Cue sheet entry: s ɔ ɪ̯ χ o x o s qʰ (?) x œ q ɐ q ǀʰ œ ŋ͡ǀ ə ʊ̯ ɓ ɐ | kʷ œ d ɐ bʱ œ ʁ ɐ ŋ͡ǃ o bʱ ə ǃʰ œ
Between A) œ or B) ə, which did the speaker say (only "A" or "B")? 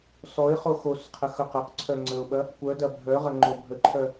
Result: B